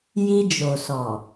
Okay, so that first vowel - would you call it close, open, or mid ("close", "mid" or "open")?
close